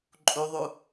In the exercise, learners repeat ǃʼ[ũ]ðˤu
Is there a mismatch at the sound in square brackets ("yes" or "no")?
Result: yes